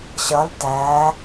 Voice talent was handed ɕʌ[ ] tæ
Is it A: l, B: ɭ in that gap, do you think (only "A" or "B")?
A